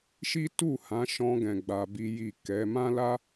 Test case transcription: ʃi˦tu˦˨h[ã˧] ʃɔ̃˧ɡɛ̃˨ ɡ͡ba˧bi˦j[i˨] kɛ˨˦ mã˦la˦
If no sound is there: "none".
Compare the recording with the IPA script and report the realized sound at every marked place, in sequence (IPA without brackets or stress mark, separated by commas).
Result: ã˨˦, i˦˨